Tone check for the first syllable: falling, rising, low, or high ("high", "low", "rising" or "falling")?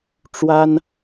high